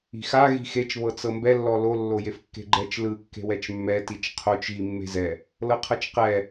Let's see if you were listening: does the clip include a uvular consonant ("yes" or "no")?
yes